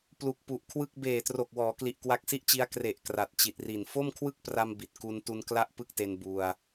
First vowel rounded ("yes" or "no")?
yes